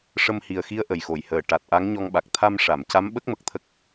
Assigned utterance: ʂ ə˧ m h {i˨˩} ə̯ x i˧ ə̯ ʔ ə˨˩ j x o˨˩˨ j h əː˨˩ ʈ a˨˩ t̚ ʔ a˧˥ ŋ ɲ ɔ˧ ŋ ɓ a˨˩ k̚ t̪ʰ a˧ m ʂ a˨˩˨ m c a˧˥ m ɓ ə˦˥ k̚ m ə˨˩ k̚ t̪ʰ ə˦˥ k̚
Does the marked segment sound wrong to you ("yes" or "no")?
no